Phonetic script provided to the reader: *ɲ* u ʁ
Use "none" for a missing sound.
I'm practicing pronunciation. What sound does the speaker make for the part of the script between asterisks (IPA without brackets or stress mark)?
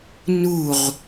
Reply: n